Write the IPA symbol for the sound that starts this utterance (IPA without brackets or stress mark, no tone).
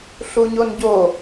ɬ